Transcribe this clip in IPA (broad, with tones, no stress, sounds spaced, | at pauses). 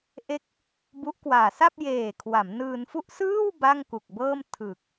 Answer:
ʔ e˦˥ k̚ | b u˦˥ ʔ k w aː˨˩ s a˥˩ p̚ j eː˨˩ kʰ w a˩˦ m n ɯː˧ n f u˥˩ ʔ s ɯː˥˩ w b a˥˩ ŋ k u˨˩ k̚ b ɤː˥˩ m tʰ ɯ˨˩ k̚